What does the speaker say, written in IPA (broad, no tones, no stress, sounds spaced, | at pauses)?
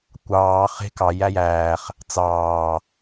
kʷ ɑː χ e̤ k ɑ j æ j æː χ | t͡s ɑː